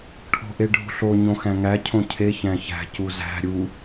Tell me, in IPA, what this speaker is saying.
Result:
ʈʰ o̤ ʔ e ɖʱ ṳ ɬ o ɲ õ x æ̃ ŋ æ cʰ õ cʰ e ç æ̃ ç æ̤ c u z æ̤ ɾʲ u

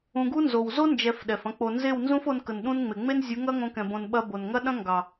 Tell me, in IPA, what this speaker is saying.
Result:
ũ˧ ɡ u˦ n z o˨ w z o˦ n d͡ʒ ɛ˧ f ɗ ɛ˨ f ɐ̃˦ k͡p o˧ n z e˦˨ w n z ũ˦ f o˧ n k ə˨ n ɗ ũ˧ n ŋ͡m e˨ ŋ͡m e˦ n zʲ u˨˦ ŋ ɐ˦ ŋ õ˧ k ɛ̃˨ b õ˨ n ɓ ɐ˧ b o˨ n ŋ ɐ˦ ɗ ɐ̃˦ ŋ ɡ ɑ˨

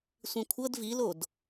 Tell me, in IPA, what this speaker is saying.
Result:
sʷ ĩ kʷʰ ɤ d v i l o d

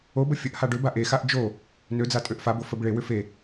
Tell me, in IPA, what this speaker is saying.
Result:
o b ə fʲ ə ʔ h a ɖ ø b a ʔ e x a ʔ d͡ʒ o | n ø d͡z a tʼ ø ʔ f a b o f ə b ɭ e w ʏ f e

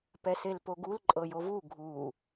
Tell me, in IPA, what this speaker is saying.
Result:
p ɛ s e l p o ɡ u l ǃʼ ɤ j o v u ɡʱ u

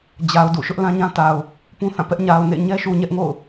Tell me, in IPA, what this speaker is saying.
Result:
d͡ʑ a˨ ʊ̯ d ṵ˦˨ ʃ ʊ˦ ʔ l ã˦ ɲ ã˦ t a˨ ʊ̯ | p ũ˦ θ ã˦˨ p ɛ˦ ʔ ɲ a˨ ʊ̯ n ḛ˦˨ ɲ ɛ˦ ʃ u˨ ɲ ɛ˦ ʔ ŋ o̰˦˨ ʊ̯

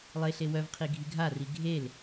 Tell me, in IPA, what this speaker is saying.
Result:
lˠ e ɬ e w œ v qʰ i ɡʱ i ɡʱ a r i ɡʱ e l

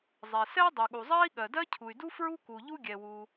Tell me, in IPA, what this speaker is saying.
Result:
zˤ ɛ˩ s ɛ˥ dˤ y˩ ɠ u˩ zˤ ɜ˥ i̯ ɠ ɜ˩ d ɜ˥ cʰ u˩ y̯ d u˥ f ɹ u˥ k u˩ ʎ u˥ ɡʲ ɛ˩ w u˩

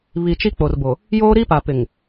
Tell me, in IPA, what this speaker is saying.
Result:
β i˨ t͡ʃ i˦ k͡p o˨ r b o˨ | j oː˦ ɾ i˦ p a˨ p ɪ˨ ŋ

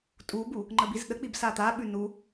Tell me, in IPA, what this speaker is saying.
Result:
tʼ u b u | ŋ͡ǃ ə b i z ɗ ə k͡p i b s a t̪ a ɓ ʉ n u

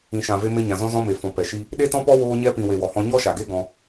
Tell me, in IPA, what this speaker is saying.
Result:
ĩ˨ ʃ ã˨ v e˧ m e˧ ɲ ã˨ z ɔ̃˧ z ɔ̃˧ m e˨ f ɔ̃˨ p ɛ˨ ʃ i˧ | ɗ e˦ t ɔ̃˦ p ɔ˦ w oː˧ ɲ ɛ˧ p ĩ˨ w e˨ w ɔ˨ h ɔ̃˧ ɲ ɔ˦ ʃ a˨ ɡ e˦ ɡ ɔ̃˧

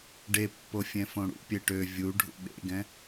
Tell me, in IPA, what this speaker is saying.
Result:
ɖ e pː o fʲ ɛ̃ f õ ɽ ṵ pʲ e ʈ ø vʲ u ɖʱ ṵ ɓ ḛ ɡ ɛ̃

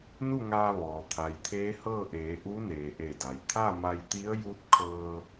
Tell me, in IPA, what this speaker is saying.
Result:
n u˥˨ ŋ aː˧ ʋ ɔː˩ t̪ʰ a˩ j t̪ʰ eː˧˥ h ɤː˥˨ ʔ eː˩˧ ʔ u˧˥ n eː˩ ʔ e˧˩ d a˩ j t̪ʰ a˥˨ m a˧ j t̪ i˧˥ ə̯ j u˧˥ t̚ kʰ ɤː˧

